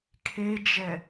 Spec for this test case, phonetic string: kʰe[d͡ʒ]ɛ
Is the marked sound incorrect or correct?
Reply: correct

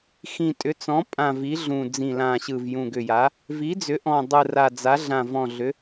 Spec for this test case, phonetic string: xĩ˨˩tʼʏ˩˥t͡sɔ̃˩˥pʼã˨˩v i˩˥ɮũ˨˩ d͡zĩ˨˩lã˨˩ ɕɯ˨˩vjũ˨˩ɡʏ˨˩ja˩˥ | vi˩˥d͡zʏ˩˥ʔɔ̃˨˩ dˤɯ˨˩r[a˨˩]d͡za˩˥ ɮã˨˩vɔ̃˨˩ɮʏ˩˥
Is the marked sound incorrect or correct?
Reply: correct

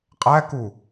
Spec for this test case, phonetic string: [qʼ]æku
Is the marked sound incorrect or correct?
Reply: correct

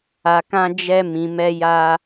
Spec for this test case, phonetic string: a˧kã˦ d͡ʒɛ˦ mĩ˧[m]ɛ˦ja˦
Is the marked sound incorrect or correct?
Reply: correct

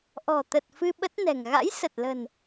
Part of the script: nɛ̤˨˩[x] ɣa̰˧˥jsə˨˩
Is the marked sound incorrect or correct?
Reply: incorrect: ŋ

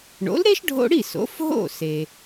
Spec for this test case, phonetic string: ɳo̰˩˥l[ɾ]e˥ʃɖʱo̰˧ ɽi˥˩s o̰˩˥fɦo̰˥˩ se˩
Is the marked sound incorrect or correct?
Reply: correct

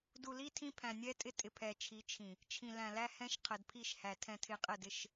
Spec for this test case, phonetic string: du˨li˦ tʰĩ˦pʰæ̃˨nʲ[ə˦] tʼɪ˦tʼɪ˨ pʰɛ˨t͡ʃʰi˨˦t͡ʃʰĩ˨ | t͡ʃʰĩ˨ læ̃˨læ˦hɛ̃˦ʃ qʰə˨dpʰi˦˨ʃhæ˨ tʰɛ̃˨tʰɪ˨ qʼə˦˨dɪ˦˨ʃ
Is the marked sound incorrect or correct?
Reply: incorrect: ɛ˦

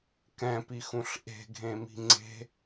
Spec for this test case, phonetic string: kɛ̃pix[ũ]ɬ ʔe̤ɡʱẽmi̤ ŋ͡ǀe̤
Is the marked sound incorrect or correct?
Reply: correct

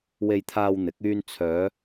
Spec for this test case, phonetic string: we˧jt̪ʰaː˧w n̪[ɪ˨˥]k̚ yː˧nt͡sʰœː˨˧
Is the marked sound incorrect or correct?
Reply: correct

